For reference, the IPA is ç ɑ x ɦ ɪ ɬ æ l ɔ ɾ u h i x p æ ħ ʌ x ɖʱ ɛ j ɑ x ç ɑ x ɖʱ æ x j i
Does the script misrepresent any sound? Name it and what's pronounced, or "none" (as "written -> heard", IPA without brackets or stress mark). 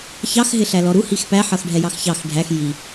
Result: none